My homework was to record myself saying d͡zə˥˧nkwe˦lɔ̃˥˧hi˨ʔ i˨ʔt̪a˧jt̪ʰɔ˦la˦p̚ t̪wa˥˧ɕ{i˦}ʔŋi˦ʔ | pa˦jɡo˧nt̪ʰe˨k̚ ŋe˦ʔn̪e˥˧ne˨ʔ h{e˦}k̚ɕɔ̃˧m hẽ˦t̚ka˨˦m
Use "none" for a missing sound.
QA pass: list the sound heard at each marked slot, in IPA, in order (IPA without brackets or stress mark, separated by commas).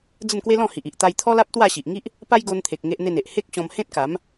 i˨, e˦